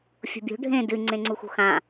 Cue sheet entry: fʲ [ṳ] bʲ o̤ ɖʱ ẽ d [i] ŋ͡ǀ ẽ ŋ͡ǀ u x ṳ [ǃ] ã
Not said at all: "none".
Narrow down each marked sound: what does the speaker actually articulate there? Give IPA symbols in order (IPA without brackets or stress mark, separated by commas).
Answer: o̤, ɨ, x